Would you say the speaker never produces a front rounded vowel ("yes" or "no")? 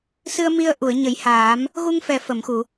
yes